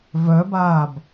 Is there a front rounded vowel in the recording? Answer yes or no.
yes